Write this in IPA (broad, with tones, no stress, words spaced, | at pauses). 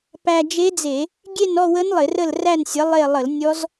pæ˧d͡ʒe˦˥d͡ze˧˩˧ | ɡʲe˥˧nɔ˥˧wə˦˥n lˠɪ˧˩˧rə˥˧lræ˥˧nsʲə˨˥ lˠe˥˧ lˠə˧˩˧l nʲɔ˦˥z